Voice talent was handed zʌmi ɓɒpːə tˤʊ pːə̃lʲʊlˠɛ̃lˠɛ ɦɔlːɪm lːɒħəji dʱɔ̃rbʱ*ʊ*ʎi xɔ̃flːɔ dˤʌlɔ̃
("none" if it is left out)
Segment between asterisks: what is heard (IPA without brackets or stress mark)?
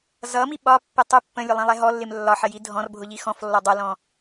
ʊ